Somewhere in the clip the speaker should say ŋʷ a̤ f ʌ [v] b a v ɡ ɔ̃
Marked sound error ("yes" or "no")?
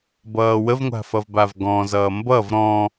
no